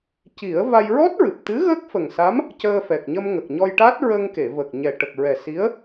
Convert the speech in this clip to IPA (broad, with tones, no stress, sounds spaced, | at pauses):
c i˨˩˦ ə̯ v a˧ j ɹ ɔ˦˥ t̚ ɹ ɨ˨˩ p̚ t̪ ɨ˧˥ ɣ ə˦˥ k̚ f ə˨˩ ŋ s a˧˥ m | c əː˧ f ɛ˨˩ k̚ ɲ ə˧ m ŋ ə˨˩ k̚ ɲ ɔ˧ j ʈ a˦˥ t̚ ɹ ə˧ ŋ k e˨˩˨ v ə˨˩ k̚ ɲ ɛ˨˩ ʈ ə˨˩ k̚ ɹ ɛ˨˩ s i˧˥ ə̯